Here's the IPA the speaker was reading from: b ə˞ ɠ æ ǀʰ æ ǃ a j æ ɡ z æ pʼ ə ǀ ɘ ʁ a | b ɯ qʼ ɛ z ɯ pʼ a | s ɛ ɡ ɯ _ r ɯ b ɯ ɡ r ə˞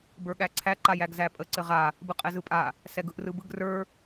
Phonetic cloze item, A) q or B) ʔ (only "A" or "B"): B